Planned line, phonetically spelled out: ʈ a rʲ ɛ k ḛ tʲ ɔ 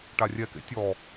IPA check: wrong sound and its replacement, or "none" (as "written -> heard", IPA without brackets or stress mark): none